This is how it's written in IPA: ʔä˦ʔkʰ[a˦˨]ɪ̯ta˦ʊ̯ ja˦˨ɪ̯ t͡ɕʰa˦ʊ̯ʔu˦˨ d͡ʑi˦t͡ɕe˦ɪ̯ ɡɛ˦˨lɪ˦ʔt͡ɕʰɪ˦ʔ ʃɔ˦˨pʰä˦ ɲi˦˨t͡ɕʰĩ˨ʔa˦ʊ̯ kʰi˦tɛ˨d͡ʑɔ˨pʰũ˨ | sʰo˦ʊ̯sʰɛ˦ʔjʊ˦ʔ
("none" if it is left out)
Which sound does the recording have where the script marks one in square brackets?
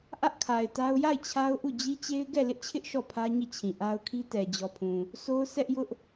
a˨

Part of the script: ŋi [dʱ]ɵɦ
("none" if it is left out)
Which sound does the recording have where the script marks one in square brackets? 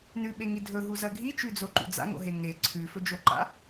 dʱ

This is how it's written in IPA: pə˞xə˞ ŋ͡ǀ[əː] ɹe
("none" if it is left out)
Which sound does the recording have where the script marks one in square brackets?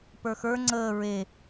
əː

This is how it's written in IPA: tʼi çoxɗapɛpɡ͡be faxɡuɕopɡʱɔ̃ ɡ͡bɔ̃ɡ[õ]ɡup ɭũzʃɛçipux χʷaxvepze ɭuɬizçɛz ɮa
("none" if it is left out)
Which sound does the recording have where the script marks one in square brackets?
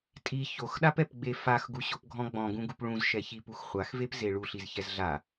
ũ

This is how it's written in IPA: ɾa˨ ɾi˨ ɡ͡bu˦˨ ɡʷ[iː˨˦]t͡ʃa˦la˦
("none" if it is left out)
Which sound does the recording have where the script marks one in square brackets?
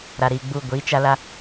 iː˨˦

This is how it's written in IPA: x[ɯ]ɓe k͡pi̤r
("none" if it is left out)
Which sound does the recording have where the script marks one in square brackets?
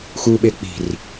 u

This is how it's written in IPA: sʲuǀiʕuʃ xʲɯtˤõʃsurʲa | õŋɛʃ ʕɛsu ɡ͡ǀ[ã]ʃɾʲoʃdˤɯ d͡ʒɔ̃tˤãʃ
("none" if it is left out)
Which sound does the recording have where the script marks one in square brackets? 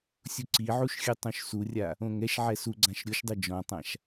ã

